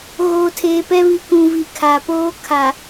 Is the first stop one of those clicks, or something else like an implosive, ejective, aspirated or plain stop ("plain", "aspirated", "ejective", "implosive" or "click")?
aspirated